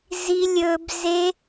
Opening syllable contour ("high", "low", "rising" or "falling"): high